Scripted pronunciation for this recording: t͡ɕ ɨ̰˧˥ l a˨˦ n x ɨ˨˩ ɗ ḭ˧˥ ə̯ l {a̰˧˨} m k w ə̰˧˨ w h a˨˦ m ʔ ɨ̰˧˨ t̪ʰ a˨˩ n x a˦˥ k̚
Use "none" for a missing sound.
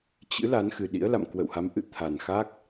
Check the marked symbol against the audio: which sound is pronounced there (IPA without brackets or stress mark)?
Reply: a̰˧˨